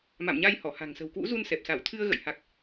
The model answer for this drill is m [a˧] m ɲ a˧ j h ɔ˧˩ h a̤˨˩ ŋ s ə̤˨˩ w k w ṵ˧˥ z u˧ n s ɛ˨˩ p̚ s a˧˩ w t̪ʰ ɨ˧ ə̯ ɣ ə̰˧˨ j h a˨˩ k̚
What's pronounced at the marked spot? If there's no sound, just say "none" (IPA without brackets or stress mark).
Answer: a̰˧˨